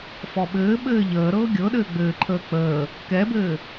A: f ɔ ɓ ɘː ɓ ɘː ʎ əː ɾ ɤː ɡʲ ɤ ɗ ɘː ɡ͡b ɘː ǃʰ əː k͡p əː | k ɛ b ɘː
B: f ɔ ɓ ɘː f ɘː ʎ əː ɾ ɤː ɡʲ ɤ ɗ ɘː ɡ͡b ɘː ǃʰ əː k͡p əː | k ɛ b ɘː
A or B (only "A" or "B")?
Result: A